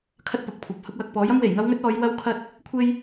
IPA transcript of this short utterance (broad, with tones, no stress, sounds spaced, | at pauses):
kʰ ɐ˥ t̚ p ɐ˨ p̚ kʷʰ ɐ˨˥ p̚ h ʊ˧ k̚ w ɐ˨ k̚ p ɔː˨˥ j ɐ˥ m w e˨˩ j ŋ ɐ˥ w ŋ ɵ˥ t̚ ɔː˨˥ j w ɐ˥ w kʰ ɐ˥ t̚ | kʷʰ e˥ j